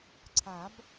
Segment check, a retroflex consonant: absent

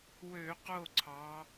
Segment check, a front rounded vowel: present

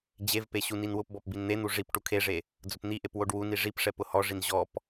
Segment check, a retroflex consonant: present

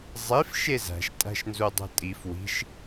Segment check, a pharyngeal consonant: absent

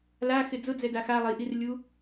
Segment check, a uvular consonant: absent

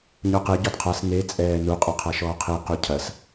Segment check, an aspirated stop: present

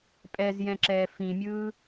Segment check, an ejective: present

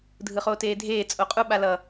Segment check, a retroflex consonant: absent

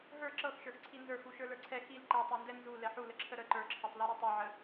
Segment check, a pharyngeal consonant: present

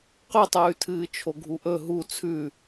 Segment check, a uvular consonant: present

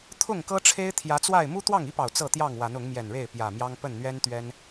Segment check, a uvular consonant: absent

